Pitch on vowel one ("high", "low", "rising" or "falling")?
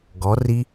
rising